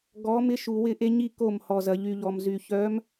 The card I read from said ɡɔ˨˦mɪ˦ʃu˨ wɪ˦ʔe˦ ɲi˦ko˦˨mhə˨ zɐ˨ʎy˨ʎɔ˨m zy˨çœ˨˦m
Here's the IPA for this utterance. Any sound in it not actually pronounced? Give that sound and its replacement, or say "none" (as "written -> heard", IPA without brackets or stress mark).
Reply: ə˨ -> ɔ˨